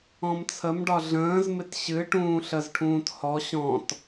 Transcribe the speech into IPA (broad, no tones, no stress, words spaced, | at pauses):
ɔ̃mt͡sʰəmɖɒ ɮə̃ːzmɪt ɕɨ ʈũːɬəzʈʰũːt hɔ ɕɔ̃t